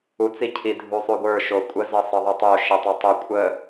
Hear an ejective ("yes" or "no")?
yes